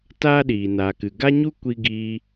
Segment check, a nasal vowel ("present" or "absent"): absent